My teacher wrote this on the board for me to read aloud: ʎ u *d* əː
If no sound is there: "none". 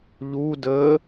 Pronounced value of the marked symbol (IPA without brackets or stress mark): d